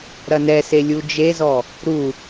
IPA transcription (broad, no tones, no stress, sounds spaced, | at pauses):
ɾ ɐ n ɛ s e lʲ u d͡ʒ e z ɔ | ɾ u